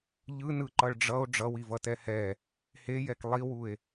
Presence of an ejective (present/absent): absent